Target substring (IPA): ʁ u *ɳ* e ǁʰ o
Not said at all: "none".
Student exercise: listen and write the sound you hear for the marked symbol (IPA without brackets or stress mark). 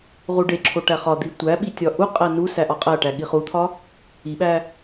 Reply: ɖ